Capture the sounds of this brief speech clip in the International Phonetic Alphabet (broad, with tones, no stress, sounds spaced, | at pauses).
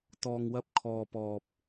t̪ ɔː˨ ŋ w ɐ˧ p̚ kʰ ɔː˨ p ɔː˨ p̚